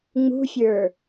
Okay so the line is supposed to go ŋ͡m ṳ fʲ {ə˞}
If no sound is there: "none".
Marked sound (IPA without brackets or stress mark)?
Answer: ə˞